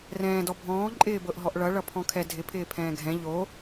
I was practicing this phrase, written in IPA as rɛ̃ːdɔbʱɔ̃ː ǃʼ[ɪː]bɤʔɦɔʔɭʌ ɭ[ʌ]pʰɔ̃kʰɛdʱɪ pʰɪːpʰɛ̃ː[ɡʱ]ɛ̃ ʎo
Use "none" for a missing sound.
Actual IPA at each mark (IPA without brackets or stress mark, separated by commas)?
ɪː, ʌ, ɡʱ